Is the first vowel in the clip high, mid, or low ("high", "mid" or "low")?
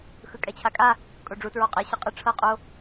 high